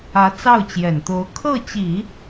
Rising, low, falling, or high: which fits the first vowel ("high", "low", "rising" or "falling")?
rising